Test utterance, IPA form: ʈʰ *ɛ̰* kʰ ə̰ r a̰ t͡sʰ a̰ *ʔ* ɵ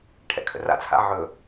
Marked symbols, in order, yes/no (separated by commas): yes, no